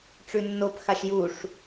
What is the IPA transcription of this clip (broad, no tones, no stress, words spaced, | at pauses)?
ʈ͡ʂʉnːop xaʃjuʂ